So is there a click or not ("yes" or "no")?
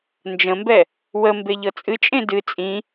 no